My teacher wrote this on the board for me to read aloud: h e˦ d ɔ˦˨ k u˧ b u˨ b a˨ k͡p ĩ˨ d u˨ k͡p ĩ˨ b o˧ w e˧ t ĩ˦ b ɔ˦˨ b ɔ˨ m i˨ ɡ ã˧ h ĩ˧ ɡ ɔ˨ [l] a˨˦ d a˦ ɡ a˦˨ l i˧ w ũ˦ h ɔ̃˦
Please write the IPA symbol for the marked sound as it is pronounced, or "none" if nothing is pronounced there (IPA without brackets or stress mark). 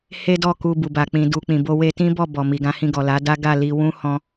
l